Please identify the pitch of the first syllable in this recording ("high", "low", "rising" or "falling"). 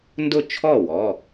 falling